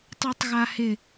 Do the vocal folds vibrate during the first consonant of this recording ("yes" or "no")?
no